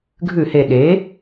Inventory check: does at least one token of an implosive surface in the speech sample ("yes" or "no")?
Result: yes